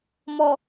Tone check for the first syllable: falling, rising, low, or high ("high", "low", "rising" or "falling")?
low